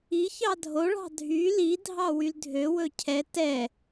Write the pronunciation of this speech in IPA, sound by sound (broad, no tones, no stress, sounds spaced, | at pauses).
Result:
i ç ɑ dʱ o ɭ ɑ̤ dʱ y l i dʱ ɑ w y l dʱ ø w ɵ cʰ ɛ t ɛ